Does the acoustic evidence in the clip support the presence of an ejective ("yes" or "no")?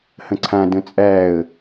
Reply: yes